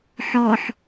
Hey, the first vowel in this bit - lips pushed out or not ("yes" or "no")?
yes